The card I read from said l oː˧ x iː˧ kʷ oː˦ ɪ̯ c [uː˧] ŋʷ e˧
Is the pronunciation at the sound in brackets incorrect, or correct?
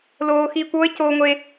incorrect